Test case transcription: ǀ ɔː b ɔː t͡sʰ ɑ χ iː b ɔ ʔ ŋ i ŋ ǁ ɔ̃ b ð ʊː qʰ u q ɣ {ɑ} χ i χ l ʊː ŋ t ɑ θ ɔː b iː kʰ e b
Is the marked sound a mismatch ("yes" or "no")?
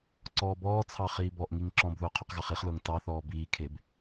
no